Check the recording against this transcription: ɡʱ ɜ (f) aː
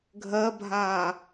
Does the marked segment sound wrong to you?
yes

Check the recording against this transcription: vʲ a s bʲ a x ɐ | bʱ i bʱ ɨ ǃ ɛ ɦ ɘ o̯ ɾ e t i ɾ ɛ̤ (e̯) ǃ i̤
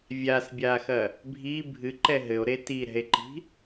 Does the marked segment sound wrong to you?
no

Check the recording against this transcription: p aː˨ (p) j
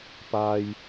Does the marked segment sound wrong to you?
yes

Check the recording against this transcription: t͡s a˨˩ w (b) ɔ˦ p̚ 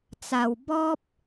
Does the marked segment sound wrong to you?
no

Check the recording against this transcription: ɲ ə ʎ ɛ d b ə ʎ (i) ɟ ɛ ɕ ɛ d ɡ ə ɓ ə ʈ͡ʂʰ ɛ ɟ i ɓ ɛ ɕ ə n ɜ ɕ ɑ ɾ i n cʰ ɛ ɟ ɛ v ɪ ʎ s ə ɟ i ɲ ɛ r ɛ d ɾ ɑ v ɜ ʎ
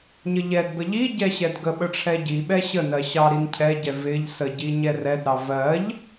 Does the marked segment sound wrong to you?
no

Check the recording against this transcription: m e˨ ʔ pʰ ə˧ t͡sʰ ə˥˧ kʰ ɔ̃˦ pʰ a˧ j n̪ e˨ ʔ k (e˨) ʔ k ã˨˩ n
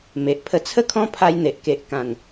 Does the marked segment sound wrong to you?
no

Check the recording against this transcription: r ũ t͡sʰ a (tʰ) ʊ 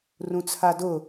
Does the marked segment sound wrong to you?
yes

